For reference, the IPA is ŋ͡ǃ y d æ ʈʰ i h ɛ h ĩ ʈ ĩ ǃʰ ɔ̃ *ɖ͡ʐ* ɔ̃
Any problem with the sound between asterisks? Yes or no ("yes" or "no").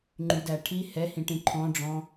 no